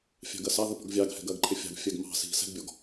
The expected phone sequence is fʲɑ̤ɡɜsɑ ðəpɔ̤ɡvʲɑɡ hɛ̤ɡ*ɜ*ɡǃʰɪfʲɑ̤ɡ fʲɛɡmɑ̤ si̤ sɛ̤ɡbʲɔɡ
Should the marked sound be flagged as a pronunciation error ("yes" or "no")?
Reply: no